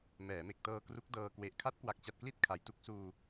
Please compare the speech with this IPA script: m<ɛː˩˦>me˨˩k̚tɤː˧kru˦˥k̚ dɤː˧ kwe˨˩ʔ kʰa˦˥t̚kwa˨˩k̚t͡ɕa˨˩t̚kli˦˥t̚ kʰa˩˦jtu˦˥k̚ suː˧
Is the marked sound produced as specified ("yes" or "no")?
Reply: yes